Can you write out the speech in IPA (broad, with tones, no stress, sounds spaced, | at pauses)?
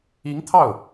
i˧˥ ŋ t̪ʰ ɑ˥˩ ʊ̯